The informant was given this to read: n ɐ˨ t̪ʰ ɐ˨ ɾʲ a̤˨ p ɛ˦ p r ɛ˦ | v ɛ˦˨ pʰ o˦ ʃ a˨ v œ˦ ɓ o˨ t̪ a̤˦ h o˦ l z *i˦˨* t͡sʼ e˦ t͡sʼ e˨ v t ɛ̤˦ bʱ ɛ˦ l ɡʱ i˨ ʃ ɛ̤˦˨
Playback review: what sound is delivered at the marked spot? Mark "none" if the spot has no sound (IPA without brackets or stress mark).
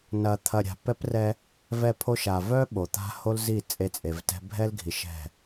i˦˨